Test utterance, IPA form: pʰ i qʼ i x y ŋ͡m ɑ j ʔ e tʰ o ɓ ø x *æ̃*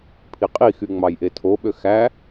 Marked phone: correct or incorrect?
incorrect